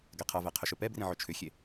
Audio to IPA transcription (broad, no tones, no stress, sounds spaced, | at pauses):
ɡ ɛ qʰ ʌ v ɛ qʰ ʏ ʃ ɵ p ɛ b r ĩ ʕ ɵ t͡ʃʰ ʏ xʲ e